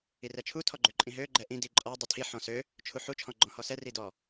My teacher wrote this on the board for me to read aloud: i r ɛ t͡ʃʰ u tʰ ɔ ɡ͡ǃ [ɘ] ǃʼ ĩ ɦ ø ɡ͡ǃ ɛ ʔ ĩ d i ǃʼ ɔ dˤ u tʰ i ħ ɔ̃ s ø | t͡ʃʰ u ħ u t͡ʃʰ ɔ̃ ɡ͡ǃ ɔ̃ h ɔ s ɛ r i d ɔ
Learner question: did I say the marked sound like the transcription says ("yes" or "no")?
no